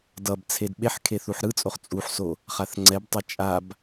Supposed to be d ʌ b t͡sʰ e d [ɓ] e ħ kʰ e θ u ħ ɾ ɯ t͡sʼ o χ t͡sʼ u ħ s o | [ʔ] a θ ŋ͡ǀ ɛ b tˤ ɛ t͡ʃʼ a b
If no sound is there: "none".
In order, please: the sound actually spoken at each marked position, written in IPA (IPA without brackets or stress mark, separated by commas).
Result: ɓ, χ